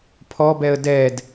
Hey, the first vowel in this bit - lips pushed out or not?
yes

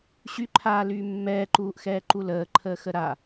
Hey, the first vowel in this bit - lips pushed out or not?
yes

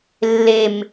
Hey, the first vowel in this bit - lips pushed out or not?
no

